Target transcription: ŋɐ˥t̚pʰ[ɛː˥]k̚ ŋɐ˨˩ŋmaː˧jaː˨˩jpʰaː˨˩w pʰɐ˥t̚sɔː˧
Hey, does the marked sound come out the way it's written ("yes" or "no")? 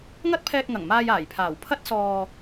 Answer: no